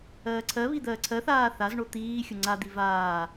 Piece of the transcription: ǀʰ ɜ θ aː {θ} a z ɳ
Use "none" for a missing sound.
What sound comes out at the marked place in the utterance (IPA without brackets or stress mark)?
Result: θ